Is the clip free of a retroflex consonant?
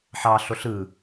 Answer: yes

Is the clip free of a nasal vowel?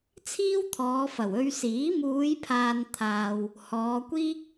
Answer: yes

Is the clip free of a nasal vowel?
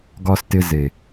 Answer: yes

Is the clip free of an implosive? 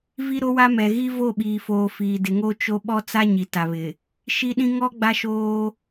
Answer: no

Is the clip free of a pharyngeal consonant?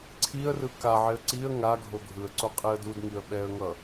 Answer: no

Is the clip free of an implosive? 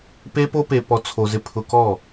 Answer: yes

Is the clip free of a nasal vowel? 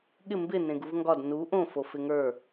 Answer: no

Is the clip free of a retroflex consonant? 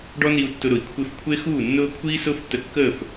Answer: no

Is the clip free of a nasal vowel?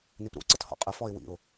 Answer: yes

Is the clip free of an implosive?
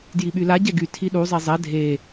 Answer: no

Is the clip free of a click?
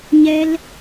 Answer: yes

